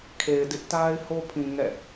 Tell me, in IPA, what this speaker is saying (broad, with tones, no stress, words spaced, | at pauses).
kʰe˨ɪ̯dɪ˦ʔta˦ɪ̯ho˦ pʰĩ˨ ŋɛ̰˦˨